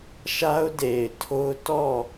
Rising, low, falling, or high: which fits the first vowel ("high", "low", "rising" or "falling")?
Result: high